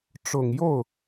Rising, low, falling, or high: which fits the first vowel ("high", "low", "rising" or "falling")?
low